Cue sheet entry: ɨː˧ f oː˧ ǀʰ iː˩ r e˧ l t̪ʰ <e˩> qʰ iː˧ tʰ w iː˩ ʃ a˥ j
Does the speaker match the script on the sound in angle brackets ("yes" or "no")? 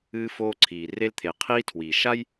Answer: yes